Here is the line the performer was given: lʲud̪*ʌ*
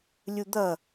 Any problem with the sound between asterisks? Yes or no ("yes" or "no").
no